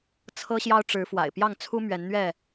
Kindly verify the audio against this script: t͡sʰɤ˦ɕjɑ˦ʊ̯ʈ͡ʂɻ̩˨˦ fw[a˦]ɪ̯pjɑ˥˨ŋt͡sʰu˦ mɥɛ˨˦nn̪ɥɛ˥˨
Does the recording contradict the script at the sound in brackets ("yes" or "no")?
yes